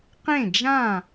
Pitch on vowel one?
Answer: falling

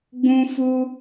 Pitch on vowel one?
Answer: high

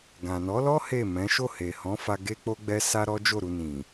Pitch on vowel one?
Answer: low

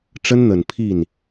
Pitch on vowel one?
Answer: high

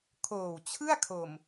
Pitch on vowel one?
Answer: low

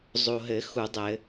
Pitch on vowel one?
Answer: low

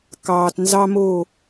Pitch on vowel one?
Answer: low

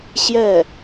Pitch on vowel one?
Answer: falling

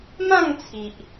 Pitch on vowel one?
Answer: falling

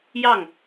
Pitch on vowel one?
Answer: falling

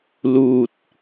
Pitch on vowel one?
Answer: low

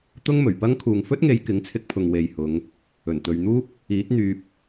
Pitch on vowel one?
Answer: high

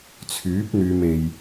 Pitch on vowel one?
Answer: rising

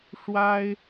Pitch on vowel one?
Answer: high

